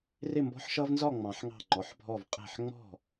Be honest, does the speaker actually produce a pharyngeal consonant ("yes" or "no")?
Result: yes